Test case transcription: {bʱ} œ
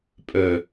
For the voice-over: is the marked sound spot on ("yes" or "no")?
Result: no